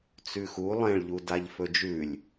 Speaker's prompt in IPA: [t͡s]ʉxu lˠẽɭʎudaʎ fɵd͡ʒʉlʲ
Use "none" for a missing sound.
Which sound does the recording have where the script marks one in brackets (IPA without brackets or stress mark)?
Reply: t͡s